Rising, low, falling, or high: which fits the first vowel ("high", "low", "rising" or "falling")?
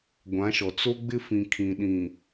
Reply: rising